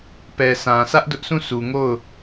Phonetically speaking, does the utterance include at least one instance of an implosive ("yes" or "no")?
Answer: no